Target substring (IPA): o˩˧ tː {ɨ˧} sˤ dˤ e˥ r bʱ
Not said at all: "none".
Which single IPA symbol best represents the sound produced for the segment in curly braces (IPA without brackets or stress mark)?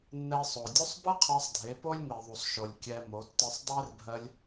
ɨ˧